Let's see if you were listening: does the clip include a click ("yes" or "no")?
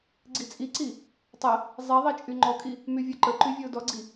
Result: yes